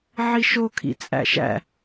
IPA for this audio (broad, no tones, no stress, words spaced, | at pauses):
ʕiʃo kʰḭt͡sʼæ̰ʃæ̰